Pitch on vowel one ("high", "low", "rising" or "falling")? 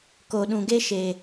low